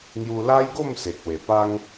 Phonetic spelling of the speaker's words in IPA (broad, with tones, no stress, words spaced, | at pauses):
ŋju˧la˦jɡo˥˧m se˨k̚we˨˩pa˦ŋ